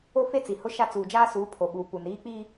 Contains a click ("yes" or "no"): no